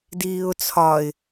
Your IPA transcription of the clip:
d iː ʊ̯ t͡sʰ ɒ ɪ̯

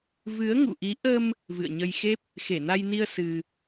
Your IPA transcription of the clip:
v ɨ˨˦ ə̯ ŋ ṵ˧˨ ʔ i˨˦ ʔ ə˧ m | v ɨ̰˧˨ ə̯ ɲ ə˧ j x e˦˥ p̚ | x e˧˩ n a˧ j n i˧ ə̯ s ɨ˧

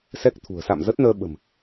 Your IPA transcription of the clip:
s ɛ˦˥ k̚ t̪ʰ ṳ˨˩ ə̯ s a̰˧˨ m z ə˦˥ t̚ n əː˧ ɓ ə̤˨˩ m

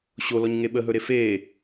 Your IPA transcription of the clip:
ɕ o l ɔ ɲ ŋ e ɓ ə ɦ ɵ ɾ e f e

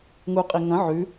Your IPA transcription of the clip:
ŋ u qʼ i ŋ ɐ̃ ʕ ʉ

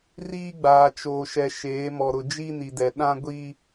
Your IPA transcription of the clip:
r iː˦ ɡ͡b aː˨ t͡ʃ oː˨ ʃ ɛ˨ ʃ eː˨˦ m ɔ˨ ɾ ʊ˨ d͡ʒ i˦ n i˨ d ɛ˨ ɗ ã˦ ɡʷ i˦

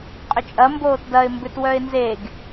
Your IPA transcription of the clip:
qʼ ʏ t͡ʃʼ ɐ m b oː t d ɐ ɪ̯ m b ʏ t w œ ɪ̯ n z e ɡ

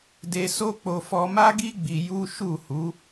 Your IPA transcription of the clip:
d e˧ s o˦ k͡p o˧ f ɔ˧ m a˦ ɡ i˦ ɡ͡b i˧ j u˦ ʃ u˦˨ h u˨˦

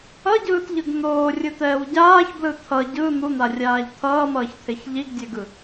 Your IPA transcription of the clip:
ʌ ɟ ɯː t ʎ ɯ ɡ n̪ oː rʲ ɯ t̪ ɛː w ɟ aː ç b l ɯ t̪ʰ ʌ ɟ ɯ n̪ u n̪ a rʲ aː ʎ t̪ʰ ʌː m ʌː ç t̪ʰ e ç ʎ i ɡ dʲ e ɡ ɯ

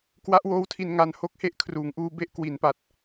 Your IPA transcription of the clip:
k w a˦˥ ʔ w oː˦˥ w tʰ i˧ n ŋ a˧ n h o˦˥ k̚ h e˥˩ ʔ kʰ r uː˩˦ ŋ ʔ uː˧ b e˦˥ ʔ k w i˩˦ n p a˨˩ t̚

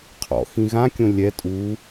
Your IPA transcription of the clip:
qʰ ɔ̰ x ĩ ɣ ã kʲ õ lʲ ɛ tʼ u

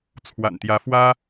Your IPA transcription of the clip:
t͡sʰ w a̰˨˩ n t̪ j ä˨˦ f w ä˦

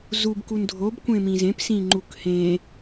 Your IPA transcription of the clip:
z u b k u n dʱ o b kʷ ẽ m ĩ z ẽ p s ĩ ŋ͡ǃ u k h ẽ

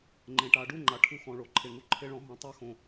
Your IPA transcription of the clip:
ŋ͡ǃ ẽ˩ ʈ a˩˧ ɖ u˥˧ ŋ͡ǃ a˩ ʈʰ u˧ x ɔ̃˩ ɭ o˩ ǃʰ e˩ ŋ u˧ ǃʰ e˧ ɭ ɔ̃˩˧ ɦ õ˩ tˤ a˥˧ x õ˩

